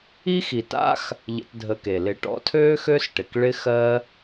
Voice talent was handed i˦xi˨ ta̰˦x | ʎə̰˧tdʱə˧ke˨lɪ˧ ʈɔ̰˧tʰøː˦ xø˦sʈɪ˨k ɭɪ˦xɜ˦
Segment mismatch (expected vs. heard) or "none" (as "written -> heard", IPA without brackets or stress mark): none